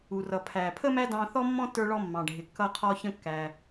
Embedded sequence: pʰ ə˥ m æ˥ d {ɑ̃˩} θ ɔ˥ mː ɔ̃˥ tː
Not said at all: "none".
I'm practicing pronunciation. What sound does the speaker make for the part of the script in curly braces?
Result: ɑ̃˧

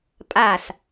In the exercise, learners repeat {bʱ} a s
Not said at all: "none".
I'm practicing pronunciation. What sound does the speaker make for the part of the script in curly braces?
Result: pʼ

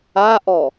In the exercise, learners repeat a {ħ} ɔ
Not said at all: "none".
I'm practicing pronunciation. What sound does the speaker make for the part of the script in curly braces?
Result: ʔ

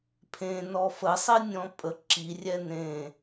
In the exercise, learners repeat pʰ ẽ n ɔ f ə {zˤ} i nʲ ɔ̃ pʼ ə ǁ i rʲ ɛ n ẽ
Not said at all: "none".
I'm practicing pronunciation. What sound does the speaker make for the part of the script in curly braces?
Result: sˤ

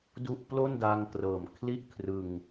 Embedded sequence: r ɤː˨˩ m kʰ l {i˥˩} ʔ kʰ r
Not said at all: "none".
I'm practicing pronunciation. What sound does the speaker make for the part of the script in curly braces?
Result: i˥˩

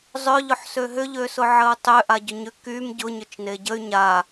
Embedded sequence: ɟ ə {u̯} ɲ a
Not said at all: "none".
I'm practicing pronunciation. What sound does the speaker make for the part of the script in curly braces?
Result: y̯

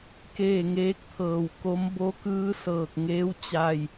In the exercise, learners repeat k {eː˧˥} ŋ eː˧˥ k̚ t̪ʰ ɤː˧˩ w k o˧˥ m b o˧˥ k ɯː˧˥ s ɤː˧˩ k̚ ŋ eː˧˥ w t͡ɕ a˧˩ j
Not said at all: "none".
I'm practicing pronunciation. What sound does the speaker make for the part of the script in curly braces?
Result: eː˥˨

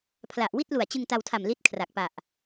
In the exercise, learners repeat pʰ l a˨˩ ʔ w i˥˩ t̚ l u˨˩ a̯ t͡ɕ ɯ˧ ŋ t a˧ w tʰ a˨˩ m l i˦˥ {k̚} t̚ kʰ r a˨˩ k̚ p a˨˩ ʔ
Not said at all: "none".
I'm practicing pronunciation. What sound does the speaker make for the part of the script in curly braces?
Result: none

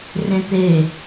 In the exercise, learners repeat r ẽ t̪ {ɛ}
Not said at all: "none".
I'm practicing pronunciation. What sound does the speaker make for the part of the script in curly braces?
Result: e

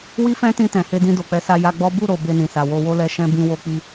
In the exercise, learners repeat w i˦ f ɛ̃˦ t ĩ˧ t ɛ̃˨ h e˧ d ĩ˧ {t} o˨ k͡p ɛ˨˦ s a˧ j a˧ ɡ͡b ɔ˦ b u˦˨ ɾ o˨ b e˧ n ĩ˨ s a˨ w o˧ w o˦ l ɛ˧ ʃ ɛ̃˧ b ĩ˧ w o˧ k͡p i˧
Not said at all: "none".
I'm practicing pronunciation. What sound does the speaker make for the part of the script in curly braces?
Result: d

